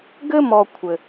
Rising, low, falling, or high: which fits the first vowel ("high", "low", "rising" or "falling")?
high